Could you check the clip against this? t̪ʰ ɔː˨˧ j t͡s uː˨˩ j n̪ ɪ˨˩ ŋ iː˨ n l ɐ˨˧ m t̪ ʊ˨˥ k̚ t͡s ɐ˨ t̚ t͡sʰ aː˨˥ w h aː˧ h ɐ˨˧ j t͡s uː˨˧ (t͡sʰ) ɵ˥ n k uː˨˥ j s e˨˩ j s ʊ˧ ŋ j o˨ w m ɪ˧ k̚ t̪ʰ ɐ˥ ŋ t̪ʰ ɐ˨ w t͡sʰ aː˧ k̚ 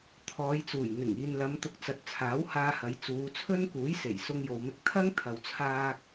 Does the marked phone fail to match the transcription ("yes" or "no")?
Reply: no